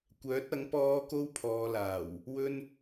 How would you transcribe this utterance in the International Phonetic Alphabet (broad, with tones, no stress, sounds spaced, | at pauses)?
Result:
kʷ œː˨˥ t̚ ɐ˨˥ ŋ p ɔː˥ k o˥ w pʰ ɔː˨˧ l aː˨˩ w | w ɵ˥ n